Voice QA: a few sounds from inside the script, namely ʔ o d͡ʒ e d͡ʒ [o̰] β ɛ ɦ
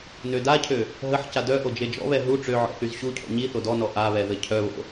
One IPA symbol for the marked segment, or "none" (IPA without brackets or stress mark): ɔ̰